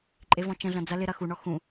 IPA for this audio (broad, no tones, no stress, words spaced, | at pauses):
ǃʼevɔ̃t͡ʃə̃ɮɐ̃ d͡zɐ lɪ ɾɐxuɳɔ xũ